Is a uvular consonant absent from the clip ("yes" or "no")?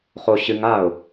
no